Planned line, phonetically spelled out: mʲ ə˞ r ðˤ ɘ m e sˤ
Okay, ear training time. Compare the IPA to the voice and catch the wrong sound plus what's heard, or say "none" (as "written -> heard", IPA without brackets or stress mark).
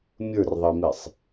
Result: ɘ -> e